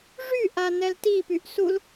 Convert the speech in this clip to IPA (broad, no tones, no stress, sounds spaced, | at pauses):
ʐ y ʔ a n ɛ l t i p y ʔ s u l